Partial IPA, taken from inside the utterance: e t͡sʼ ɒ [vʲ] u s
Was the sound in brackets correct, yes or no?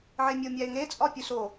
no